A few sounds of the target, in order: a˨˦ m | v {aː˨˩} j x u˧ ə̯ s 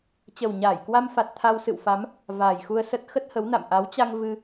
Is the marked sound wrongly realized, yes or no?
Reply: no